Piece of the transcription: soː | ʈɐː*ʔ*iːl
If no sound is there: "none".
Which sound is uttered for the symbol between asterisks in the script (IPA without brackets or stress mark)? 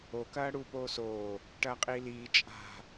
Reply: qʼ